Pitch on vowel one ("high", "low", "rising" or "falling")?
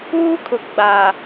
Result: high